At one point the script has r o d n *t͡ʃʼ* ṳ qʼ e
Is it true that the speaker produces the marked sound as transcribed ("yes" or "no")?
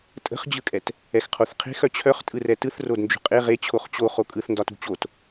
no